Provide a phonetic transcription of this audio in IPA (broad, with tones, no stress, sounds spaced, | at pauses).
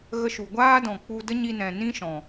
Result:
ɣ ə˧ ʃ u˨ ɡʷ aː˦ d ɔ̃˨ k͡p u˧ d ə˦ ɲ i˧ n ɛ̃˨ n ĩ˦ ʃ ɔ̃˨